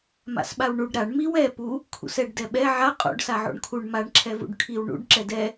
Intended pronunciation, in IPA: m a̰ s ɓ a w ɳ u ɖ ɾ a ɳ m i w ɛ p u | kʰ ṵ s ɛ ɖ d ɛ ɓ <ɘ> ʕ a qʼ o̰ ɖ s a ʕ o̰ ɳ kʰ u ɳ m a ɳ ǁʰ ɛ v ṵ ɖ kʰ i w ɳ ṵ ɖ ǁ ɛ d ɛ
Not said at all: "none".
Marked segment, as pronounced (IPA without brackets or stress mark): ɛ